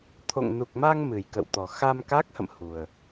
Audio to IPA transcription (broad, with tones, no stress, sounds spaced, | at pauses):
t̪ʰ o̰˧˨ ŋ n u˨˩ k̚ m a˧ ŋ m ɨ˨˩ j k ə̰˧˨ w t̪ ɔ˨˩ x a˧ m k a˦˥ k̚ h ə̰˧˨ m h u˨˩ ə̯